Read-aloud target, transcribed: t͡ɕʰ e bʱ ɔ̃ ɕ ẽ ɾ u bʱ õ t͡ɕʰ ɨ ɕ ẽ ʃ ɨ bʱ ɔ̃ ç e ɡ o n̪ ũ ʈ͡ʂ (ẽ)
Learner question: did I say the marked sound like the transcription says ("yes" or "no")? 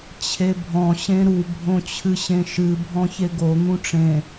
yes